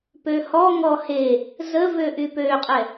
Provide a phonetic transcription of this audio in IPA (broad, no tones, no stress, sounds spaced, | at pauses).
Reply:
p ø h ɔ ŋ ɔ h e | z ə v ø ʔ y p ø qʼ ɛ